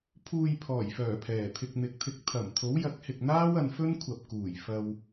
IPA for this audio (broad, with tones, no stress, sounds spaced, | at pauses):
pʰ uː˨ j pʰ ɔː˨˩ j f œː˨˩ pʰ ɛː˨˩ t̪ʰ ɪ˧ k̚ n̪ ɪ˨˥ k̚ t̪ʰ ɪ˧ k̚ t̪ʰ ɐ˨˩ m t̪ʰ o˨˥ w j ɐ˨˥ k̚ h ɪ˨ k̚ n̪ aː˥ w ɐ˨˧ n f ɵ˥ n kʷʰ ɐ˨ p̚ k uː˨˩ j f ɐ˧ w